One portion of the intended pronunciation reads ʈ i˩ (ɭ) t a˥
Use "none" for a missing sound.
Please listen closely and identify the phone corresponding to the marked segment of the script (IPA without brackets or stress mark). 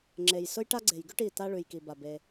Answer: none